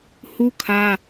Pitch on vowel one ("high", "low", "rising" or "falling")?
high